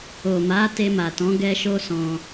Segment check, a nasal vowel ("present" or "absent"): present